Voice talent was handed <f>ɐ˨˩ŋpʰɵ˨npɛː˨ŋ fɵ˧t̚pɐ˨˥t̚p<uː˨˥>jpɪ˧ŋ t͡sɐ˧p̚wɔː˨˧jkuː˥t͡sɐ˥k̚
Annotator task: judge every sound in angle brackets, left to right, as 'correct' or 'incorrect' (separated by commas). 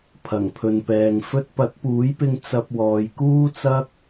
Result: incorrect, correct